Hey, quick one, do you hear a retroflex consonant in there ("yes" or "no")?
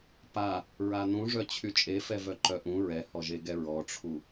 yes